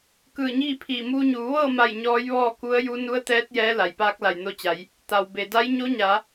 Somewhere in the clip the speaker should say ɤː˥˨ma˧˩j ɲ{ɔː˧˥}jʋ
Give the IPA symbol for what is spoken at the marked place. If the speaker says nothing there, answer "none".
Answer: ɔː˧˥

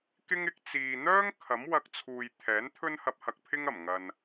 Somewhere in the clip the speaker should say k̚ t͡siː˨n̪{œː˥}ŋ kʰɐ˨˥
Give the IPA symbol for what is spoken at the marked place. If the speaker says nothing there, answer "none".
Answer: œː˥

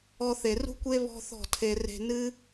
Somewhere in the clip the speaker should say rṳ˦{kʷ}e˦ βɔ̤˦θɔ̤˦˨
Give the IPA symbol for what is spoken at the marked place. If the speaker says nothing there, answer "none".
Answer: kʷ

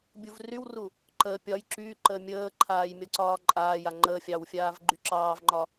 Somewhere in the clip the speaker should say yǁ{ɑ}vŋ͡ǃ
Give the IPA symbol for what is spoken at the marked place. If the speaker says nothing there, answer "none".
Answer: ɑː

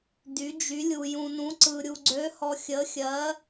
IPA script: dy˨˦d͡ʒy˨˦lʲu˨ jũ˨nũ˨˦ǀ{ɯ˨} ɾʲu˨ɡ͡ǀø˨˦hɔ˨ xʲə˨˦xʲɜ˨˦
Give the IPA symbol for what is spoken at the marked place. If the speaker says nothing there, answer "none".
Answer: ɯ˨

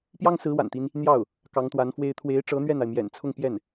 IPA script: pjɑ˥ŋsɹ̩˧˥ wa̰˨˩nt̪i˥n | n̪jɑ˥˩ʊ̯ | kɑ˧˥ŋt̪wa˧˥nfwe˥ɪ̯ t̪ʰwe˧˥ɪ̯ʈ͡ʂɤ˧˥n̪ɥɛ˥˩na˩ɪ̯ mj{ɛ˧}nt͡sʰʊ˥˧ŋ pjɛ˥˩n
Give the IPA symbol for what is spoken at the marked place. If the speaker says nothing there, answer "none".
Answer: ɛ̰˨˩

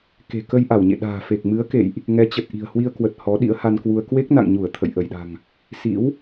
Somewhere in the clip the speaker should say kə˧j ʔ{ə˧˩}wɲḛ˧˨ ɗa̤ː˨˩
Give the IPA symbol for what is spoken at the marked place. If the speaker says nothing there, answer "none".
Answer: a˧˩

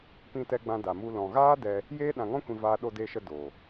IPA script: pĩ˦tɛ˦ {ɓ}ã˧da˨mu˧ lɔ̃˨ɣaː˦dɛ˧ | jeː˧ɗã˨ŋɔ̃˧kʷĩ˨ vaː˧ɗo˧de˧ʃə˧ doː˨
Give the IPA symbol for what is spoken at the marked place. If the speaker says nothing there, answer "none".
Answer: ɡ͡b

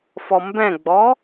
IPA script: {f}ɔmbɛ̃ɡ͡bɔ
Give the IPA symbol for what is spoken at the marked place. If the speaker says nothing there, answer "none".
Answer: f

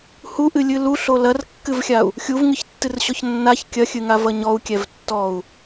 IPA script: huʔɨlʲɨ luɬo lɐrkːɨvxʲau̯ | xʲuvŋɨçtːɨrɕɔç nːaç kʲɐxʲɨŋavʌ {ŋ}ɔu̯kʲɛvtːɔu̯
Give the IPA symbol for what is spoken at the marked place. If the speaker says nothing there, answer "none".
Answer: ɲ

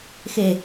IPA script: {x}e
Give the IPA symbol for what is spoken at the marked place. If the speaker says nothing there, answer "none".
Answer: x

